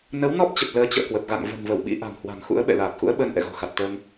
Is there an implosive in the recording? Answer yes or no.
yes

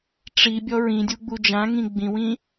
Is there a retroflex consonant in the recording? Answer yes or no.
yes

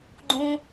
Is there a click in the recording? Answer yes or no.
yes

